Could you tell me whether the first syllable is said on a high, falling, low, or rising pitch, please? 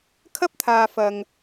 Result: high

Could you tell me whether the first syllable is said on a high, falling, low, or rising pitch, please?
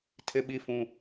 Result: high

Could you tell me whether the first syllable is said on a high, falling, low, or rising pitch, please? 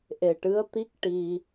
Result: low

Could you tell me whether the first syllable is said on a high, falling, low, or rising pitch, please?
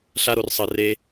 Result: high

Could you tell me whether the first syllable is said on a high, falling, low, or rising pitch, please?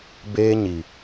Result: high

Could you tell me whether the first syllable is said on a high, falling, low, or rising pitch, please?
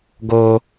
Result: high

